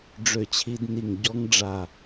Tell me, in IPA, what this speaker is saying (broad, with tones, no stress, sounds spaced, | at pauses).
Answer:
ɖ͡ʐ ø˧˩ t͡ɕʰ i˧ d n i˧˩ ŋ ɟ ɔ˦˥ ŋ ɖ͡ʐ a˧˩